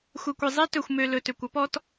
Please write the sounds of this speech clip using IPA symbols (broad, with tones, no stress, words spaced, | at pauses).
xʷɛ˨kʷɛ˨ zˤe˦ tɵ˨xʷmø˨ lɵ˨tø˨kʷ ɔ˦pɔ˦t